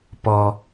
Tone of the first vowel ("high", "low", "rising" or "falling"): low